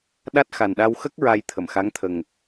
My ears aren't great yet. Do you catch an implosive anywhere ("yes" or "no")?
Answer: yes